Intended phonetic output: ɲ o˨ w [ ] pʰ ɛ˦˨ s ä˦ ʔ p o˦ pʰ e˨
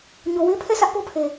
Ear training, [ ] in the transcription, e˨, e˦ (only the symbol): e˦